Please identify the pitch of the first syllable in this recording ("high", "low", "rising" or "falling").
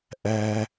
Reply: high